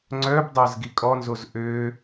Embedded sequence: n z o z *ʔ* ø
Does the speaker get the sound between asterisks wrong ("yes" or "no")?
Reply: no